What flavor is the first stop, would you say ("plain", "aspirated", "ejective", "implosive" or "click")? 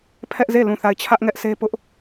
aspirated